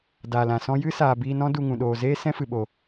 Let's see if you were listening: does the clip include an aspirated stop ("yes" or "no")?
no